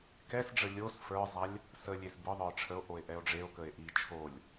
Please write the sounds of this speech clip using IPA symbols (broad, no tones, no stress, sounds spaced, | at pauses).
k ɛ s ɖ͡ʐ ə lʲ o s f ə˞ zˤ a lʲ | s ə lʲ e s b ɯ ðˤ ə˞ ʈ͡ʂʰ ə o̯ ʔ o e̯ ʔ ɛ o̯ ɖ͡ʐ e o̯ k ə e̯ ʔ i t͡ʃʰ o lʲ